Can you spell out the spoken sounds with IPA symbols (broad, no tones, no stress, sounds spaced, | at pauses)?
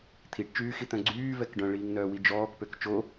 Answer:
t̪ʰ i ʈ t͡ʃ yː x i t̪ œ̃ ɡ͡ǀ yː v ɛ k ɖ œ̃ ɭ iː ŋ n œː w i d͡ʒ ɔː k p ø k t͡ʃ o